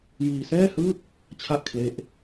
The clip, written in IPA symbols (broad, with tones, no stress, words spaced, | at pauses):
jiː˧sɛː˥˩hɯː˥˩k̚ | t͡ɕʰa˥˩ʔkʰle˦˥ʔ